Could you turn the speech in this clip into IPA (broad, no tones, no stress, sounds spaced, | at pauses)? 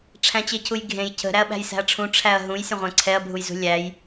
ʈ͡ʂʰ æ̃ t͡ɕ e cʰ u j ɡʱ ẽ j cʰ ə̤ ɾ æ ɐ̯ ɓ æ̤ j s æ̤ ɐ̯ ʈ͡ʂʰ ũ ʈ͡ʂʰ æ ɐ̯ ɦ ũ j sʲ ə̃ ʁʷ æ̃ ǀʰ ɛ ɐ̯ bʱ u j z ṳ lʲ æ j